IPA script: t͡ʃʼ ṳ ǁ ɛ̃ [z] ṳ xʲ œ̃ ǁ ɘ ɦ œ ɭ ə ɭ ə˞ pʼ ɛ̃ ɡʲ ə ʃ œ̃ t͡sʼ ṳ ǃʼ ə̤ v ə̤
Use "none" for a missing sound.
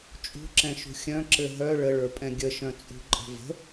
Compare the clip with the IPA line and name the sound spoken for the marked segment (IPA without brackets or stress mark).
ʃ